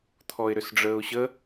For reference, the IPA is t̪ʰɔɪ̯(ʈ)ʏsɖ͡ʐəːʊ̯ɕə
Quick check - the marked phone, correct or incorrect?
incorrect